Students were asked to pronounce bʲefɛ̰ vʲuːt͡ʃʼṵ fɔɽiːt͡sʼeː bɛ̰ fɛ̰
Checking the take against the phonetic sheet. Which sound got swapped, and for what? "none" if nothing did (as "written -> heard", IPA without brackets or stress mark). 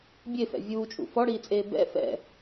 none